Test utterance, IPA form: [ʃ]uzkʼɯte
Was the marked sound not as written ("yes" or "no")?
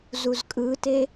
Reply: yes